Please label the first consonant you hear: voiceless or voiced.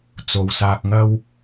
voiceless